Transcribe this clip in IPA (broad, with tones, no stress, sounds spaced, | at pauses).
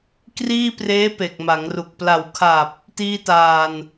k r iː˥˩ p r eː˦˥ p e˨˩ k̚ m a˩˦ ŋ r u˨˩ k̚ p l a˨˩ w kʰ a˨˩ p̚ | t iː˧ t aː˨˩ n